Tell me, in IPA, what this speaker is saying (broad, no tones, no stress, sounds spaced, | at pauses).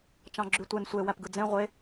t͡ʃ ɑ̃ ɡ͡ǁ y tʷ e n sʷ e w æ p ɡ ɯ d͡z ẽ ʁʷ e